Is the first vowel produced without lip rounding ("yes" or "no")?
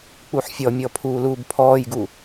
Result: no